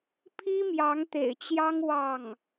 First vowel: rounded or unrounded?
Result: unrounded